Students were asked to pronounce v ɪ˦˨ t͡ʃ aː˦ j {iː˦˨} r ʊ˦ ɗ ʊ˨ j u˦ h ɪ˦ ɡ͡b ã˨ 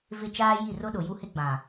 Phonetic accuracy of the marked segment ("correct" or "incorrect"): incorrect